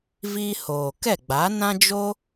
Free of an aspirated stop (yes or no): yes